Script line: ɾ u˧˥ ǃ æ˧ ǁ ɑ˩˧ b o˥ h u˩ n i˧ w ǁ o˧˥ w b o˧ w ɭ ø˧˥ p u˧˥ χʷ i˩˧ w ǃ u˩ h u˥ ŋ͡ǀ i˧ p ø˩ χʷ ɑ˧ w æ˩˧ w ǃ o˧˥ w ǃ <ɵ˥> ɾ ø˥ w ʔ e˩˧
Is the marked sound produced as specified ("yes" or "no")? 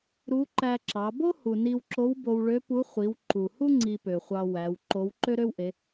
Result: no